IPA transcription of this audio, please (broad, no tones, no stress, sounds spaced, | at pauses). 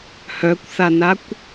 h œ kʷ θ a n a kʷ